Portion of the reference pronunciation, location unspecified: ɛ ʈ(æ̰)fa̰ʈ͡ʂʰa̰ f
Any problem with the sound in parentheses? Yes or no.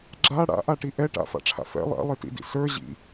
yes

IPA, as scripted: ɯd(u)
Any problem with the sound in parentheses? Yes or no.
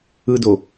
yes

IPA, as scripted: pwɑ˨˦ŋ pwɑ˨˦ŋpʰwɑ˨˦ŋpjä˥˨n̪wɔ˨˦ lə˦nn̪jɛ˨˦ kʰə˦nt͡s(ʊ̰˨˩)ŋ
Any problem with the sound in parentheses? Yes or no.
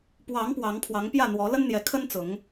yes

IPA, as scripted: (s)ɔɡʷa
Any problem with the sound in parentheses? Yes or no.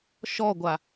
yes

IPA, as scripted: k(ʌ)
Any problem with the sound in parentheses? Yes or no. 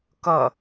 no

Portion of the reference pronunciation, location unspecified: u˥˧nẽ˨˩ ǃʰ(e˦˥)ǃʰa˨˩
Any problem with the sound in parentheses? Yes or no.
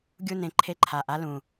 no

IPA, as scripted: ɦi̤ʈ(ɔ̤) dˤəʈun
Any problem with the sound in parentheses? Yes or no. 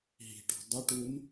no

